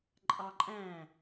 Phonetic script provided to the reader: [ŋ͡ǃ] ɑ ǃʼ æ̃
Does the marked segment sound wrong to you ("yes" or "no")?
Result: yes